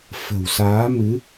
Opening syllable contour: low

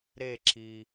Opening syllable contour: falling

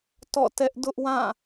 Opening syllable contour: falling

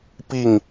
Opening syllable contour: falling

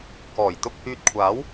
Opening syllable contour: low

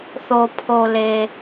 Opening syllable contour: low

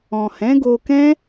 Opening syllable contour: low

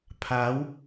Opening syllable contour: rising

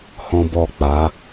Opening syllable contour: high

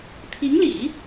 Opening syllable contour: rising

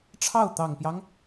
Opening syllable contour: falling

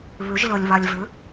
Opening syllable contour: rising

